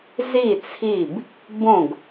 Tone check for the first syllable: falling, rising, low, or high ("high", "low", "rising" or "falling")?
falling